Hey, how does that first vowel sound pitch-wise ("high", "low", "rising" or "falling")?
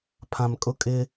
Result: low